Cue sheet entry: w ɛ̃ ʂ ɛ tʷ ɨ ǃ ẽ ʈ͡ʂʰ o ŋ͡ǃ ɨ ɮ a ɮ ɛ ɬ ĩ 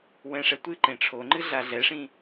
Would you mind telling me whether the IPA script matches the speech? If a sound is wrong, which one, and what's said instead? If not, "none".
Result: ɬ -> ʂ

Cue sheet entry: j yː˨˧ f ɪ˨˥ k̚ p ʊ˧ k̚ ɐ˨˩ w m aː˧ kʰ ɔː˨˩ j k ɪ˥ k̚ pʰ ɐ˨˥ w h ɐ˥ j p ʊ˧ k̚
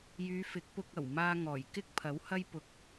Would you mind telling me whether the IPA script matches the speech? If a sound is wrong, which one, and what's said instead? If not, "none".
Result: kʰ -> ŋ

